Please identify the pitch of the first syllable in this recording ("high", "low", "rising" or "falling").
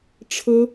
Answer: high